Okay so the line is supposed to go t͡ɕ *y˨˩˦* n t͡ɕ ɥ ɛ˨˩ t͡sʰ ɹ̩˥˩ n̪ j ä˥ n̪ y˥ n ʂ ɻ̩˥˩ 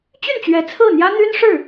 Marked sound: incorrect: y˥˩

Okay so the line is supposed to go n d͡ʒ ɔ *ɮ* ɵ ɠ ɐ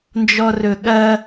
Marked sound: incorrect: r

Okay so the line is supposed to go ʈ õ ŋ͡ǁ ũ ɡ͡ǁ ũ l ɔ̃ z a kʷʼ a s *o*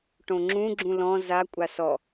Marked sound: incorrect: ɔ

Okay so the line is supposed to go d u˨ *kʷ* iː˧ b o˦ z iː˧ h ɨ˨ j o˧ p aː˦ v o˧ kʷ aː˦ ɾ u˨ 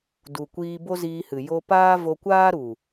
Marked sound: correct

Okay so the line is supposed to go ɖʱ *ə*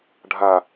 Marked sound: incorrect: a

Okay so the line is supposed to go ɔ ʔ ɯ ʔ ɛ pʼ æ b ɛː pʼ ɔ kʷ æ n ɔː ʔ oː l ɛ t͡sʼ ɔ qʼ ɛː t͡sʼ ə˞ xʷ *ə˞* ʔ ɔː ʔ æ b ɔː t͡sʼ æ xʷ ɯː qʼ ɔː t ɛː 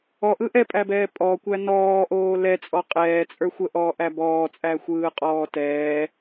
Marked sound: incorrect: ə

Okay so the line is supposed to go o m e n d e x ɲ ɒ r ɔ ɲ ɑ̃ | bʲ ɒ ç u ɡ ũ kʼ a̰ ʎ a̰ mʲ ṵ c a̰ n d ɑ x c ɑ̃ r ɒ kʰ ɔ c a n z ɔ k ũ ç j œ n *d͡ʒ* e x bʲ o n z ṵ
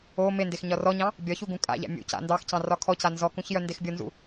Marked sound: incorrect: d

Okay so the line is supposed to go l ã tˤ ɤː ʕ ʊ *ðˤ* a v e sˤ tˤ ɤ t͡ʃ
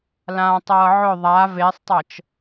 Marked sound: correct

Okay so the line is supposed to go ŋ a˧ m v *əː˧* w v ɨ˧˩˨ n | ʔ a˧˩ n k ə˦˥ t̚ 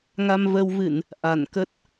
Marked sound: correct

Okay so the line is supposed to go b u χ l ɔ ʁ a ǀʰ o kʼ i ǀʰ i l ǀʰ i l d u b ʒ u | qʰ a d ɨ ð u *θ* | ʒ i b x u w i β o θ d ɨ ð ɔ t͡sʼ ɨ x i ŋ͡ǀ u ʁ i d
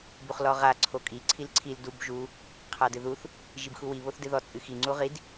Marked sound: correct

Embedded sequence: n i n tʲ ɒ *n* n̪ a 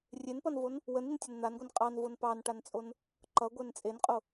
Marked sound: correct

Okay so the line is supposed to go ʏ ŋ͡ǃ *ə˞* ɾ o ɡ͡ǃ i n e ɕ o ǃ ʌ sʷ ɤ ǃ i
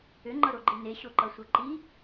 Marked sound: incorrect: ʌ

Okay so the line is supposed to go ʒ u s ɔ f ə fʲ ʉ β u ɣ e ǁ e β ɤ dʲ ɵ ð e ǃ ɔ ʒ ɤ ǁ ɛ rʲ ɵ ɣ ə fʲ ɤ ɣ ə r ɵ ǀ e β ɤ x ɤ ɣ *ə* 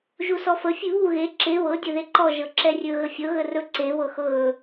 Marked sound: incorrect: ɵ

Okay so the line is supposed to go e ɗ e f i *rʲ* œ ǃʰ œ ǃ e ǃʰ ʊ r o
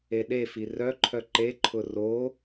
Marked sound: incorrect: r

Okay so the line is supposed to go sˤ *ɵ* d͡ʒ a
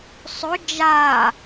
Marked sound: correct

